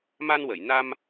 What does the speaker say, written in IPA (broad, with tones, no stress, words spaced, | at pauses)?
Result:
ma˧nwə˨˩˨jna˧m